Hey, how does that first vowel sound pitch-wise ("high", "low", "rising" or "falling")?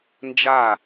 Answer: falling